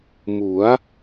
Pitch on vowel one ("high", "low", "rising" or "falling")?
rising